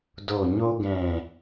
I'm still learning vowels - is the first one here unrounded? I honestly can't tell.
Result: no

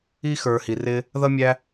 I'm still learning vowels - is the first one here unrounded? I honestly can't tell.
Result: yes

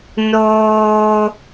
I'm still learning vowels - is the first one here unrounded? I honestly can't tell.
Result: no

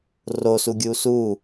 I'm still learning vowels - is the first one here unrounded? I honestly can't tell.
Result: no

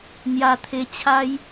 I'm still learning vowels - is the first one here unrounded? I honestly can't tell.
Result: yes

